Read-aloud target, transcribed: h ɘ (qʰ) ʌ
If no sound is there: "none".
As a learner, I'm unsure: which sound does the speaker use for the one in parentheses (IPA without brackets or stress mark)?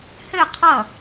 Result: qʰ